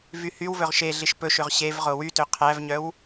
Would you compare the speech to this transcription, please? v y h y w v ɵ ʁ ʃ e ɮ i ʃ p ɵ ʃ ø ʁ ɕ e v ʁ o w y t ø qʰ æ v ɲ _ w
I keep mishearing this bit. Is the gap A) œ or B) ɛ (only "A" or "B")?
A